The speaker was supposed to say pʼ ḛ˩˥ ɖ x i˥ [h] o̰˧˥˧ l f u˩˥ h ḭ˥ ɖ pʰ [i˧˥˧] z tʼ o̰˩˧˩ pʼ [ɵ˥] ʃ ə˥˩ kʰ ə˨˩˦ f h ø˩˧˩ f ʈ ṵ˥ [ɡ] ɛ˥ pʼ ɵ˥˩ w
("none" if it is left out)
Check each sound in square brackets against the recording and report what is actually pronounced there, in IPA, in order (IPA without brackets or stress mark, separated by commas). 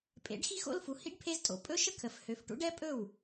x, e˧˥˧, ɵ˥, ɖ